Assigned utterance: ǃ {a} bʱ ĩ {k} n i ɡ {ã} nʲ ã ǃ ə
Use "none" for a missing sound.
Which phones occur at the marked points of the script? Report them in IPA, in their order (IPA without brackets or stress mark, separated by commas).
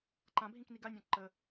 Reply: ã, k, a